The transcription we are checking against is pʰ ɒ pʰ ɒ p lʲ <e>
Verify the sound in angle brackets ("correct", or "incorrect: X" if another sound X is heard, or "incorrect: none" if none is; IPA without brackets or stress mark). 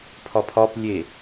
correct